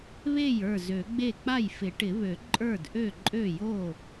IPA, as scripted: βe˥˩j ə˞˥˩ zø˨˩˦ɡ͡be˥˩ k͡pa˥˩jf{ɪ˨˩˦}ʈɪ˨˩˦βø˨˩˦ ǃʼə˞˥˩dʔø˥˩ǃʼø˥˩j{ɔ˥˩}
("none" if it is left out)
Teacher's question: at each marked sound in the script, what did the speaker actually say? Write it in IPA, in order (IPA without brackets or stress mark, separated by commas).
ɪ˨˩˦, o˥˩